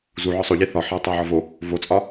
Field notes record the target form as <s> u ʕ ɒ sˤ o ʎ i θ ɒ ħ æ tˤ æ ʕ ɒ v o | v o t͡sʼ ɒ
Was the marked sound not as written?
yes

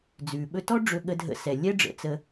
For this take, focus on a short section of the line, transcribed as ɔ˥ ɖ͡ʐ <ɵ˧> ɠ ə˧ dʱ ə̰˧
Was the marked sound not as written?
no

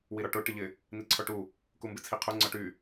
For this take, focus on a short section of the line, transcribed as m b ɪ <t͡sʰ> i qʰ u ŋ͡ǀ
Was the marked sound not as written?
no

